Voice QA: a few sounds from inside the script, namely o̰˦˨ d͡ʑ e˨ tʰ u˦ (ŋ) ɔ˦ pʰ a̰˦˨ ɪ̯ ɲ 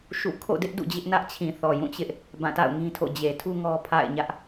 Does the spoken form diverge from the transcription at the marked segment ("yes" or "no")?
no